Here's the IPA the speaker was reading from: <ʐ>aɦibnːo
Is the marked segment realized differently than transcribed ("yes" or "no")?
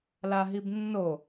yes